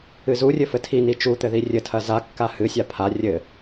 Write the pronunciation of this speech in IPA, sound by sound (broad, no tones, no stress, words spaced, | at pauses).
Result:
ɨzurʲɘ fɘtʰini t͡ʃut̪ɘ ðirʲɘtʰɐ zakːa hɨsʲa pʰa rʲɘ